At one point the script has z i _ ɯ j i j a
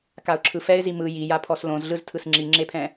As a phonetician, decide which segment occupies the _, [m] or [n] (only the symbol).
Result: m